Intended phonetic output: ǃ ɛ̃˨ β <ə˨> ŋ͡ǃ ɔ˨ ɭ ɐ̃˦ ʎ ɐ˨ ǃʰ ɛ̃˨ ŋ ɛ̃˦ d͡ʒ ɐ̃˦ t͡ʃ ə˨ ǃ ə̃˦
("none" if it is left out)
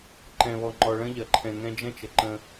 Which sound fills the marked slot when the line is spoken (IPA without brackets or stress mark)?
ɔ˨